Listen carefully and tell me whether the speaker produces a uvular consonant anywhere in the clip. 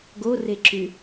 no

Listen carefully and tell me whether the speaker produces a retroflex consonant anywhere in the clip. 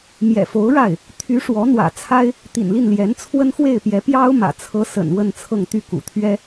yes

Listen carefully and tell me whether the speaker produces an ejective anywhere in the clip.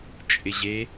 yes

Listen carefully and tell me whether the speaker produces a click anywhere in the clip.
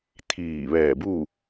no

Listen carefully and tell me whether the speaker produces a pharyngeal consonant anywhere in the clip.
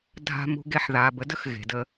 yes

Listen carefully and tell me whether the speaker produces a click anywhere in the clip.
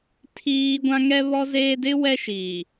no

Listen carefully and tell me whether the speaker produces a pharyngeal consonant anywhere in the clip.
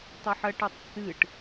yes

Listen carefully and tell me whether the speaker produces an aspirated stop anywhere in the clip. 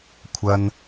yes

